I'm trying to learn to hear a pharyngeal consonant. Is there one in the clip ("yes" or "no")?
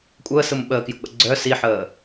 yes